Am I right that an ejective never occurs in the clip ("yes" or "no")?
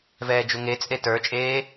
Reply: no